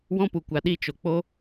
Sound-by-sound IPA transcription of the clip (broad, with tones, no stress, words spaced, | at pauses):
wɔ̃˦pu˨kʷa˨ ɗi˧t͡ʃo˨ k͡po˦